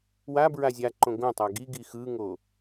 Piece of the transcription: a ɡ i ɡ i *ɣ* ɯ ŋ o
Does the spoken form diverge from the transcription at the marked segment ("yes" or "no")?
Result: yes